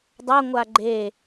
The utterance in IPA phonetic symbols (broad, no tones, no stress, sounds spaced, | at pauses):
dˤ a ŋʷ a ɡ͡ǃ e